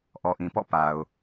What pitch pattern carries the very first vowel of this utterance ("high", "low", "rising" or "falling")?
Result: low